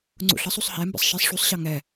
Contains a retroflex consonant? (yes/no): yes